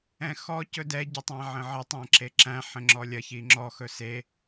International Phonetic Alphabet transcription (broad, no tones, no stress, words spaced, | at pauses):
ɛ̃xɔ cɵdɛ ɟətˤæ̃ʕə̃ʕə tˤæ̃ǁeǁæ̃ ħə̃ŋ͡ǁɔlʲɐ çiŋ͡ǁɔ xɵse